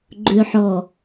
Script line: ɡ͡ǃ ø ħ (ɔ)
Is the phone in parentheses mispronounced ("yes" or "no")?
no